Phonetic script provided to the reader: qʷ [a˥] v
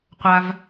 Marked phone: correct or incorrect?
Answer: incorrect